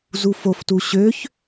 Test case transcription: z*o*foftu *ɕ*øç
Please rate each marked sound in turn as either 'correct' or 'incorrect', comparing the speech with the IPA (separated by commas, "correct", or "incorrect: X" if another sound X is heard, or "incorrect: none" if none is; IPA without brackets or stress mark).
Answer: incorrect: u, correct